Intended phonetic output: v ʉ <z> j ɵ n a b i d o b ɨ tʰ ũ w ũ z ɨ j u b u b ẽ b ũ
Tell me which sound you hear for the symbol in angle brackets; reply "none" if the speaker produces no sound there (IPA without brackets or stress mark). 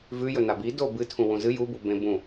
none